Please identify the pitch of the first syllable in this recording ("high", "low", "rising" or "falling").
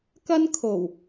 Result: high